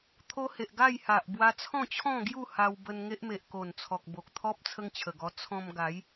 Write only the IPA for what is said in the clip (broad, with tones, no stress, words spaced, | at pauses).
t̪ʰo˦he˨ʔ ɡa˥˧jha˨ʔ bwa˧t͡sʰɔ̃˥˧t͡ɕʰɔ̃˥˧ɡju˥˧ ha˧wbə˧n ŋe˦ʔme˨ʔ ko˨˩nt͡sʰɔ˨k̚ bo˨k̚t̪ʰɔ˦p̚ t͡sʰə˦ŋt͡ɕʰə˨˩ɡɔ˧ t͡sʰɔ̃˧mɡa˨˦j